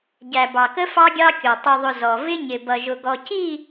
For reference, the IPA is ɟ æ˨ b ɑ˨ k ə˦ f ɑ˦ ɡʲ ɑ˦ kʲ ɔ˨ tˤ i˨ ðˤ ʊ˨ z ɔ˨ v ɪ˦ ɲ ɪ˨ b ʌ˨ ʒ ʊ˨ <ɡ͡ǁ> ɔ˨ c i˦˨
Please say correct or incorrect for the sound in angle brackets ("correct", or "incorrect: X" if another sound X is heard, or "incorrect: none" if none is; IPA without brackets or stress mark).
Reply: incorrect: ɡ